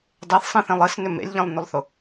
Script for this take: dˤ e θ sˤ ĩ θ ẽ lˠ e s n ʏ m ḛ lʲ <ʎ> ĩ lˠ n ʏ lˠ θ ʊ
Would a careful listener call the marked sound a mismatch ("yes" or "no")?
no